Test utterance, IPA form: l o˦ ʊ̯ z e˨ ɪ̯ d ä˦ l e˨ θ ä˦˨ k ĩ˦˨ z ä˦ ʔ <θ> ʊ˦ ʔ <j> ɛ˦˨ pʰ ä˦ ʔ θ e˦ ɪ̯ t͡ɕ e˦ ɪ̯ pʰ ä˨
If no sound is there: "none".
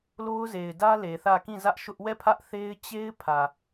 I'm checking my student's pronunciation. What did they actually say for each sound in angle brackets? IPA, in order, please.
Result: ʃ, w

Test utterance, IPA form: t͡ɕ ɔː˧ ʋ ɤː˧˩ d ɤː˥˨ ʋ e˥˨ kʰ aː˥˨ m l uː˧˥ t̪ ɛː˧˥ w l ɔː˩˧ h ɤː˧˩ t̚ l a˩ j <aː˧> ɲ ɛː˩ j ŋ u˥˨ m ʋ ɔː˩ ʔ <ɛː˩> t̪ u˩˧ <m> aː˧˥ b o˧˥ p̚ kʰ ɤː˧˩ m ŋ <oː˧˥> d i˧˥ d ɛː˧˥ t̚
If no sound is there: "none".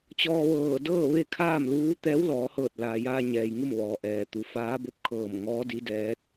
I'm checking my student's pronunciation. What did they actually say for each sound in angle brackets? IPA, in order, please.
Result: aː˧, ɛː˩, f, ɔː˧˥

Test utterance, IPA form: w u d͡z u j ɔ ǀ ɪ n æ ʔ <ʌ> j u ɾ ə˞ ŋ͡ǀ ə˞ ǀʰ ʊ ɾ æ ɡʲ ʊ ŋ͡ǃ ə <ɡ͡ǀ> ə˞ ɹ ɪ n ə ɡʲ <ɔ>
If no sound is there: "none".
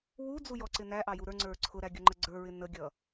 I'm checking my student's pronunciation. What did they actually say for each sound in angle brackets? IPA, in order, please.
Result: ɑ, ɡ͡ǀ, ʌ

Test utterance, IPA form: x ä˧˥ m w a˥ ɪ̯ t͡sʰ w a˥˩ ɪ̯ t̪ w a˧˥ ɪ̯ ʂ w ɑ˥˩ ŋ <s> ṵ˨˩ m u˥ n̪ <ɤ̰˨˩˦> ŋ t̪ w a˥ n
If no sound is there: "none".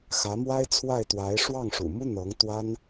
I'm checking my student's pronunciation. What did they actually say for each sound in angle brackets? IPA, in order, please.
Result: ʂ, ɤ˧˥

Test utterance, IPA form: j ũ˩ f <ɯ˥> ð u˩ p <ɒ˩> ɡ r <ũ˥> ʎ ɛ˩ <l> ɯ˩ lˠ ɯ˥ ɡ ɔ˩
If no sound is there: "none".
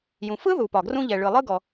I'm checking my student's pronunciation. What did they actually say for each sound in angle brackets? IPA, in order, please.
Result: ɯ˥, ɒ˩, ũ˥, ɭ

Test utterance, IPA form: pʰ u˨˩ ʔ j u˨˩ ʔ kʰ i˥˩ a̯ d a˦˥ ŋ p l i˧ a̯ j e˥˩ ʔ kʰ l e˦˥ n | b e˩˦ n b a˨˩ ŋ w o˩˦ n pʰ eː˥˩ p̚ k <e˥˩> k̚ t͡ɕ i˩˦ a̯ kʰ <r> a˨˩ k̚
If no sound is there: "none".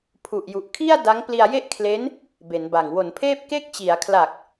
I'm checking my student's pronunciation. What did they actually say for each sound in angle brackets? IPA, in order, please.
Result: e˥˩, l

